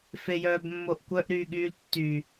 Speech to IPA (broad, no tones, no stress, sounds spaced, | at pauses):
f e j œː b mː o ʔ kʷ œ ʔ ɾ yː ɠ yː l tː y